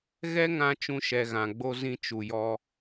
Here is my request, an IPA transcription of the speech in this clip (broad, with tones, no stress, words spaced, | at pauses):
ɣɛ˦ ŋã˦ t͡ʃũ˧ʃɛ˨ɣã˨ɡ͡bo˧ zĩ˧t͡ʃu˨jɔ˧